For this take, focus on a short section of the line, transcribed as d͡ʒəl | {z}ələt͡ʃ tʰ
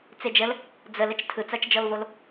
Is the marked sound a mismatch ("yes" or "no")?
yes